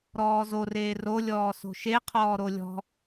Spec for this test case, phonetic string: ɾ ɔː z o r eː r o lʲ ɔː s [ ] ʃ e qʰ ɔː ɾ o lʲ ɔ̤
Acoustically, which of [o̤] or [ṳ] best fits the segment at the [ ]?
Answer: o̤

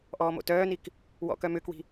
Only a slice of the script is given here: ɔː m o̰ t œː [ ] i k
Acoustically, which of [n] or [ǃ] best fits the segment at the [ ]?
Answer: n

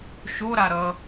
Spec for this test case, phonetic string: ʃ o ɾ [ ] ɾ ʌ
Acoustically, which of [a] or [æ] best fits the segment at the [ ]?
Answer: a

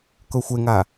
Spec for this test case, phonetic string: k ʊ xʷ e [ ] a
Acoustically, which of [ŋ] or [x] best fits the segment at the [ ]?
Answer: ŋ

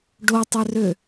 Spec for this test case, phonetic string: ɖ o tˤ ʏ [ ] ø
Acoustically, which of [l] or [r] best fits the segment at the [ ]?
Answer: r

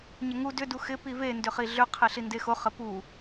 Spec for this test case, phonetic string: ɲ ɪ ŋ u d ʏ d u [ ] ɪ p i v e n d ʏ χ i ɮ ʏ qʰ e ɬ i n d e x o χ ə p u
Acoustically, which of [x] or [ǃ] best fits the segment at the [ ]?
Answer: x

